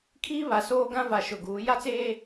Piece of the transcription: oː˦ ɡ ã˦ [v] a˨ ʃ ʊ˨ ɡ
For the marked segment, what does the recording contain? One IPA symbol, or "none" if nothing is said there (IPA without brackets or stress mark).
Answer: v